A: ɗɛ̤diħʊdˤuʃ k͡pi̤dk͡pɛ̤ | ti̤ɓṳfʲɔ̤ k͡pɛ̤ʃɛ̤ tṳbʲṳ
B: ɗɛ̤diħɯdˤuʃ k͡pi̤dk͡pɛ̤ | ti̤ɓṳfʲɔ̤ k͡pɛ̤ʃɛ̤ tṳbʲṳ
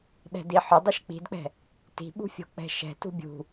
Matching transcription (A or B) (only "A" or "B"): A